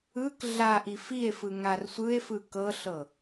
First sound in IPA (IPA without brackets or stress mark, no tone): ɯ